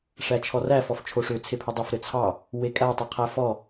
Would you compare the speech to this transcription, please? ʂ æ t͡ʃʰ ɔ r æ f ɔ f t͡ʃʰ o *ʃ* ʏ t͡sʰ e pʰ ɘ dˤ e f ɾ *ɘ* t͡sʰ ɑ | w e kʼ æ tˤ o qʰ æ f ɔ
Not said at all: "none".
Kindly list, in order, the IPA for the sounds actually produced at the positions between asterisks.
ʂ, ɘ

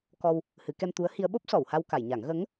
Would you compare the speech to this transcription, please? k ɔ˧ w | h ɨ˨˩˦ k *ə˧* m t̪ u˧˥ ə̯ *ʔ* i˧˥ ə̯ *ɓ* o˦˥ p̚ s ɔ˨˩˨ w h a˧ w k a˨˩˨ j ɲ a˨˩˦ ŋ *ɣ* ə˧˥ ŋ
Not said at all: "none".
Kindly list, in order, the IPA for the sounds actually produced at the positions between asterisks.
ɛ˧, h, ɓ, ɣ

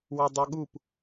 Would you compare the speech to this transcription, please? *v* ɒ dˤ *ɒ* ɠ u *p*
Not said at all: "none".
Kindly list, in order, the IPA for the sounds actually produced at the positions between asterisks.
w, ʌ, p

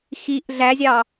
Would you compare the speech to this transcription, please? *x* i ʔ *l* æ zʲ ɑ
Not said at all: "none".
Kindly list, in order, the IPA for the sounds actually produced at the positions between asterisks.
x, ɮ

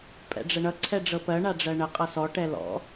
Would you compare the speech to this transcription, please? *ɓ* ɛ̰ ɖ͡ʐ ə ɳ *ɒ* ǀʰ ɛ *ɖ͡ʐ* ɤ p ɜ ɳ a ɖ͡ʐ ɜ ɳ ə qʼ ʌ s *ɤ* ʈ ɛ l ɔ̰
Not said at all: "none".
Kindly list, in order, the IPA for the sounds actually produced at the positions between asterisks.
pʼ, ʌ, ɖ͡ʐ, ɔ

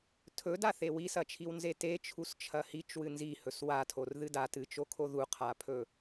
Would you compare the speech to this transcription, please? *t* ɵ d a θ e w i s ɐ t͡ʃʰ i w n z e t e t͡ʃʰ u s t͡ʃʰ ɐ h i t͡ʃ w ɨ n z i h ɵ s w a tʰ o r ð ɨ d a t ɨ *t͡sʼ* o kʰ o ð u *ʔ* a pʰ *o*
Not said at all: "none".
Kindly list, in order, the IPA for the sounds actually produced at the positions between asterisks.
tʰ, t͡ʃ, qʰ, ɵ

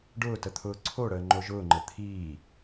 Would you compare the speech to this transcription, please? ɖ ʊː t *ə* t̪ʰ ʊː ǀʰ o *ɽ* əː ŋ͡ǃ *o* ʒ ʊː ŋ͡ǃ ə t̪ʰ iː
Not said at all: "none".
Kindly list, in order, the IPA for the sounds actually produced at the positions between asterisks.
ə, ɽ, o

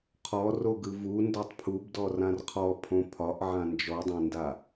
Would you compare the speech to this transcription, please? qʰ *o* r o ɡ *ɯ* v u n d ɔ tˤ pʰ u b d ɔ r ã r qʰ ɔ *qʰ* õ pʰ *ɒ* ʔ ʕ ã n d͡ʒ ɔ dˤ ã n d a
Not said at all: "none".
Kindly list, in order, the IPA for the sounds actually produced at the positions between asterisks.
ɔ, ɯ, pʰ, ɒ

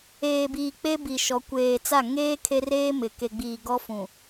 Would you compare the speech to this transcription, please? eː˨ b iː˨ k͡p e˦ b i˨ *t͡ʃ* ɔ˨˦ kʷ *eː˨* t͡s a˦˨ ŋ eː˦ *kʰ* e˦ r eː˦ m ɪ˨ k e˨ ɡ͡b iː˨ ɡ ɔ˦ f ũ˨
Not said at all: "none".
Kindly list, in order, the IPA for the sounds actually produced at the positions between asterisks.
ʃ, eː˨, kʰ

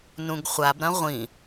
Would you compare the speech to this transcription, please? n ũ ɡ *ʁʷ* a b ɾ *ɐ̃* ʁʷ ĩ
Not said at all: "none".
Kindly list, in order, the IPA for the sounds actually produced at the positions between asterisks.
χʷ, ɐ̃

